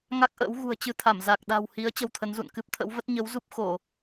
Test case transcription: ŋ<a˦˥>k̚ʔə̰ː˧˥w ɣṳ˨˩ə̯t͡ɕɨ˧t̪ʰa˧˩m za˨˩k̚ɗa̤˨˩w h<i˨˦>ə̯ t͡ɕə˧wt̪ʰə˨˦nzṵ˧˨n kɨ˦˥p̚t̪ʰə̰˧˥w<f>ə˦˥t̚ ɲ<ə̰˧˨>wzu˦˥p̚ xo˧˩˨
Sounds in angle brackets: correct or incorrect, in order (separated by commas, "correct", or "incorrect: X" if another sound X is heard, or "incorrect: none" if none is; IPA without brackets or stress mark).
correct, correct, incorrect: v, incorrect: ə˨˦